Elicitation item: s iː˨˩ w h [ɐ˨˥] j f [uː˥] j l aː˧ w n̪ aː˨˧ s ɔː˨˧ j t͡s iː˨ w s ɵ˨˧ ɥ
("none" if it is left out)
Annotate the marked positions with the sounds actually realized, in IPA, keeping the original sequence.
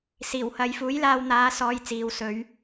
ɐ˨˧, uː˨˥

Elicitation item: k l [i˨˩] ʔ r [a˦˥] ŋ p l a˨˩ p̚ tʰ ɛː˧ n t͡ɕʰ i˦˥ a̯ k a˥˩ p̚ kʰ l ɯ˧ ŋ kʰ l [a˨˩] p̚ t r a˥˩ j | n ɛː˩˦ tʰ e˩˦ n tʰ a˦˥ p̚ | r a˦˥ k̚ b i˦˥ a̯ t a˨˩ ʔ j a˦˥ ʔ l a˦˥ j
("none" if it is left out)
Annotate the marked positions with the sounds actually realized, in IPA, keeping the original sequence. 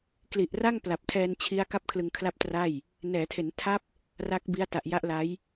i˨˩, a˥˩, a˥˩

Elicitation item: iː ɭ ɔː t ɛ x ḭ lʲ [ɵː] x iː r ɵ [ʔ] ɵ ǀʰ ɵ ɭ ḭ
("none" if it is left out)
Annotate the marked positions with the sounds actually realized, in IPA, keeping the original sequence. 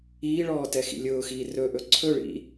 ʊː, ʔ

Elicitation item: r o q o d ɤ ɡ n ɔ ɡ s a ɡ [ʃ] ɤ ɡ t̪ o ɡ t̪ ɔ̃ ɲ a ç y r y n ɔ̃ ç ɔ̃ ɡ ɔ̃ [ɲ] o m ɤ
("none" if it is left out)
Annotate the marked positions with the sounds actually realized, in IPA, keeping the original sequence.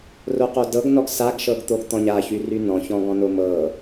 ʃ, n

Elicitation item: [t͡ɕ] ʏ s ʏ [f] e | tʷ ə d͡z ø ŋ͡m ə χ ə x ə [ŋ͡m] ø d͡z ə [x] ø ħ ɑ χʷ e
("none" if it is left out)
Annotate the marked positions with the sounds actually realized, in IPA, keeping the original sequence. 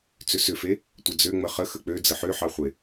t͡s, f, k͡p, ħ

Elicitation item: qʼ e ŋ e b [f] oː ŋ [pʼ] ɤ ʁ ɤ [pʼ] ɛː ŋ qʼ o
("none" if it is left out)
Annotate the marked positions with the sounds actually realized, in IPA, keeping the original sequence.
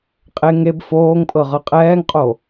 f, pʼ, qʼ

